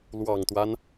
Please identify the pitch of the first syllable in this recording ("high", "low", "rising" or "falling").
low